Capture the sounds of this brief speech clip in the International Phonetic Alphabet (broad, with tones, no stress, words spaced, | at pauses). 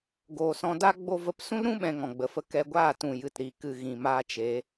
ɡoː˨sɔ̃˧da˦ ɡ͡bo˧və˨˦psũ˦lɾũ˦ ɓɛ̃˧ŋɔ̃˨ɡ͡bə˨fə˧ kɛ˧ɡʷaː˦˨tũ˨ jɨ˨tɾi˨ kɨ˨ ɣĩ˨maː˧t͡ʃe˨˦